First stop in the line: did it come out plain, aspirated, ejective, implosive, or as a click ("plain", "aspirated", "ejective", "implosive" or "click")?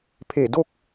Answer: aspirated